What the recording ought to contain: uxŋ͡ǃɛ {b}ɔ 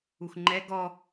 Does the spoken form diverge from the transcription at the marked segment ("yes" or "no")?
yes